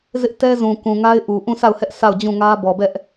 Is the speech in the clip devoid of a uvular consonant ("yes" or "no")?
yes